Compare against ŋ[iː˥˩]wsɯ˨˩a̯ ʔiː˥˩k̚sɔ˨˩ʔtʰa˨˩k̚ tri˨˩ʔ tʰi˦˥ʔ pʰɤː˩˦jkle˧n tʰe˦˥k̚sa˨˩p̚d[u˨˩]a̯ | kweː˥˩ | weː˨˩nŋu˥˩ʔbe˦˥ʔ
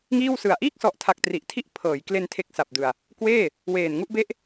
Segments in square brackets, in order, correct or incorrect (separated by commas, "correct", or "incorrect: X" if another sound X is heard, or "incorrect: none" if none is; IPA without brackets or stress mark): correct, incorrect: ɯ˨˩